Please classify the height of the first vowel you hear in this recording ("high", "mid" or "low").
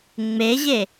mid